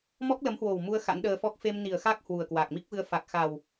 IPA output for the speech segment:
m ɔ˦˥ k̚ l ə˨˦ m h w o˨˩ w m u˧ ə̯ x a̰˧˥ n ɗ əː˧ f ɔ˦˥ k̚ f e˧ m n i˨˩ ə̯ x a˦˥ k̚ h w u˨˩ ə̯ k w a˨˩ k̚ m i˦˥ k̚ v ɨ˧ ə̯ f a˨˩ k̚ x a˨˩ w

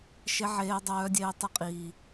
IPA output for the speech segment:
ʃ e˦ ʕ eː˦ dˤ œː˦ dʲ eː˦ tˤ i˦ qʼ iː˦

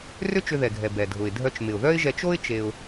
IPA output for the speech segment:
r ʏ˥ t͡ʃ ʏ˧ ð ɛ˩ ɡʱ ɛ˩ b ɛ˩ dʱ ʊ˩ ɪ̯ dʱ œ˧ t͡ʃ m ɪ˩ ʊ̯ ð œ˥ ɪ̯ ʒ ɛ˧ t͡ʃ o˥ ɪ̯ t͡ʃ e˧ ʊ̯

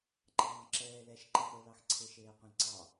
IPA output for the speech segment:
ǃ ɑ̃ː ǁ ɛː l ɛ ʃ ǃ ɛ̃ χʷ e l ɑ x ǀʰ e ʃ eː qʷ ɑ̃ l ǀ ɑ

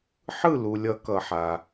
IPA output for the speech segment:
ħ ɯ˥˩ l u˩ lʲ ʌ˨˩˦ k ʌ˩ ħ a˩

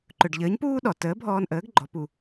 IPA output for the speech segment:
ǃ ɵ˩ ɖ ʎ əː˩˥ ɲ p uː˥ ɗ ɔ˩ t əː˩˥ bʱ ɔː˧ n ʔ əː˩˥ ɡ ɡ͡ǃ ɔ˩˥ p u˩

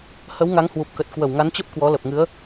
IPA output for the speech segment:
h ə˨˦ w ŋ a˨˦ ŋ h w u˨˩ p̚ k ə˨˩ t̚ k w ə˧˩ w ŋ a˨˦ n t͡ɕ ə˦˥ p̚ k w ɔ˨˦ l ə˨˩ p̚ ŋ ɨ˨˦ ə̯

